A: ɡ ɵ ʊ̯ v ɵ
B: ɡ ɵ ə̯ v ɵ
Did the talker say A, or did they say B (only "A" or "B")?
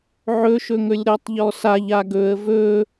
B